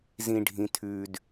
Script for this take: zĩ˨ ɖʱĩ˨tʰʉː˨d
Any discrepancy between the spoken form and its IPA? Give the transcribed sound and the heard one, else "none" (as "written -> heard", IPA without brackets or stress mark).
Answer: none